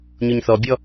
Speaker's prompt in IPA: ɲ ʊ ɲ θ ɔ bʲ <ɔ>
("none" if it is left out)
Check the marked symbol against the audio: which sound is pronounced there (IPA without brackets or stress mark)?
ɔ